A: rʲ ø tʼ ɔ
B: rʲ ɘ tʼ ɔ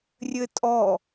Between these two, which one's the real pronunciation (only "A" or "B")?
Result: B